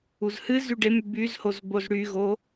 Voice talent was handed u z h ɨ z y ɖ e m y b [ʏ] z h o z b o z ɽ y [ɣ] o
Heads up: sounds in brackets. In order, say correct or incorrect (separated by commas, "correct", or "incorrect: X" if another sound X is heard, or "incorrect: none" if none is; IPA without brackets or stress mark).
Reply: incorrect: y, correct